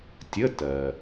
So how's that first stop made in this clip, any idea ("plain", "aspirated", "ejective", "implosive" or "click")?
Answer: plain